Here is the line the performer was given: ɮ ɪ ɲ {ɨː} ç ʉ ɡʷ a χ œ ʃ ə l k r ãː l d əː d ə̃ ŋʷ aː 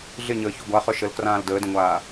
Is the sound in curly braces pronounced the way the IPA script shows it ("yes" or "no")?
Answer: no